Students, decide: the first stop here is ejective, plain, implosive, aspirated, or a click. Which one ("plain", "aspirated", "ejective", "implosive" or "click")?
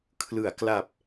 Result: aspirated